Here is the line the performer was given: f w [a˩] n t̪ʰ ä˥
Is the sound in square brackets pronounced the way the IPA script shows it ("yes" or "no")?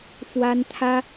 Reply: no